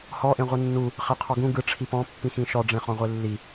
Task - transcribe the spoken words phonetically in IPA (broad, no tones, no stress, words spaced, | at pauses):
hɔʔẽʁʷɯ nːu | χeqʰɔɡũ ɡɯ ʈ͡ʂʰipɔ̃ pːĩxĩʃɔɖ͡ʐẽ χɔ̃ʁʷelːi